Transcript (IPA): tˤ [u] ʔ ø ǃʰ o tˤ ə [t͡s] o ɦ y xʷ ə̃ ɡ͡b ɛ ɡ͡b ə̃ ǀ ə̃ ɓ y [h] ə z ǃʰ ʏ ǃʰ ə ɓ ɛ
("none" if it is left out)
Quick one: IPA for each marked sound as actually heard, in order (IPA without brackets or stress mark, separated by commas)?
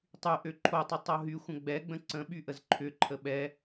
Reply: y, tˤ, ʔ